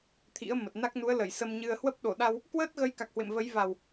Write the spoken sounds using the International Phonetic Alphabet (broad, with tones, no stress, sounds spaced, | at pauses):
t̪ʰ ḭ˧˥ ə̯ m ə˨˩ t̚ n a˦˥ k̚ n u˨˦ ə̯ l ə˧˩ j s ə˧ m ɲ ɨ˧ ə̯ h w ə˦˥ p̚ ɗ o˧˩ ɗ a˧ w | k w əː˦˥ t̚ ɣ ə˨˦ j k a˨˩ k̚ h w ḛ˧˨ m v ə˨˦ j v a˨˩ w